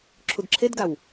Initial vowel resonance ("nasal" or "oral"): oral